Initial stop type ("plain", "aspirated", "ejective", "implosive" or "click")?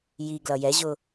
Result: plain